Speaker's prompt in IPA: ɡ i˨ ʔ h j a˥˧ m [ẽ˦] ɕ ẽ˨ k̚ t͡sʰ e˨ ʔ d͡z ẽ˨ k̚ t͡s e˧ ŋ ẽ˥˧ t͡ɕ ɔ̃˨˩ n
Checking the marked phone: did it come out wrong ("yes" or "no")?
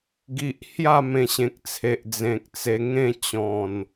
yes